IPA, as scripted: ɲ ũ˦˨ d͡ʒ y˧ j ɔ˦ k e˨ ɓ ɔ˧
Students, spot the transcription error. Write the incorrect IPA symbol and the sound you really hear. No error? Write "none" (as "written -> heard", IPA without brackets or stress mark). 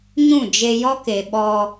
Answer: y˧ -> e˧